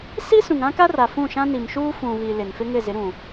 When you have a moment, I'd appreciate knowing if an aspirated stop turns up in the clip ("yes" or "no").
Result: no